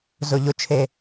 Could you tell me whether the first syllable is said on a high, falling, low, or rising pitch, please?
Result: low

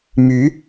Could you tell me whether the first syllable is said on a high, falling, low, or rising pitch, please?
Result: rising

